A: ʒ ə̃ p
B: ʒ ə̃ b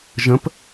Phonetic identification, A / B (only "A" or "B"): A